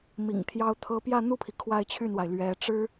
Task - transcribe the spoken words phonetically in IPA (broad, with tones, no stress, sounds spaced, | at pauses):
m ḭ˨˩ ŋ t̪ʰ j ɑ˥ ʊ̯ t̪ʰ ɤ˥ p j ä˥˧ n̪ u˥˩ pʰ i˩ kʰ w a˥˧ ɪ̯ t͡ɕʰ y˥˩ n w a˩ ɪ̯ l ɥ ɛ˧˥ ʈ͡ʂ ɻ̩˥